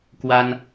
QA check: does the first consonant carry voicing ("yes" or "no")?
no